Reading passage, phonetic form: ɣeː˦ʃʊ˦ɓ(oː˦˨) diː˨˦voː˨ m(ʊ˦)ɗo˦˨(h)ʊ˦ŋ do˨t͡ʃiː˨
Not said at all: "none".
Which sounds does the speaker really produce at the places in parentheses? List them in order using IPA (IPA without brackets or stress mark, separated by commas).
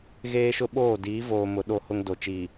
oː˦˨, ʊ˨, h